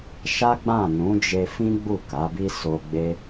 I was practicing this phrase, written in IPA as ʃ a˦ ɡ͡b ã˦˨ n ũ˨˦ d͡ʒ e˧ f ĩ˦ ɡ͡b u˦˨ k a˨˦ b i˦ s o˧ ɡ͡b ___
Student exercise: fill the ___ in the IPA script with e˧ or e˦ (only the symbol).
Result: e˦